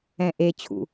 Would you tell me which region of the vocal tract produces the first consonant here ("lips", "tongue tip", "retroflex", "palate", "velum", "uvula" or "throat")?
throat